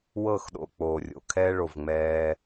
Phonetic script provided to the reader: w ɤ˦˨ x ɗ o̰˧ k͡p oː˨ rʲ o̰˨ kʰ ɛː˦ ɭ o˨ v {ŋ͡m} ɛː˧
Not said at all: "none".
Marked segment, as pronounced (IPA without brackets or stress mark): ŋ͡m